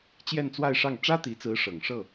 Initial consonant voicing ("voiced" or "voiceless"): voiceless